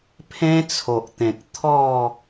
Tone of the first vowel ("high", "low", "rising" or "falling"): high